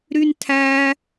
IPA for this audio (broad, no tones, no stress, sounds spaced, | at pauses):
ɾ y n tʰ æ